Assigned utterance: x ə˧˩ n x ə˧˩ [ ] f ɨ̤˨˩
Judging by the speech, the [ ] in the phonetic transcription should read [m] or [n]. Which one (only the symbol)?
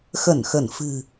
n